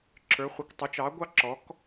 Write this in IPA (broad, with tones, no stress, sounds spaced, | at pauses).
ǁʰ ə˞˧˥ χʷ ɪ˧˥ kʷ tˤ ʊ˧˥ t͡ʃ ɑ˧˥ ɡʷ ɑ˥ ǁ ɔ˧˥ k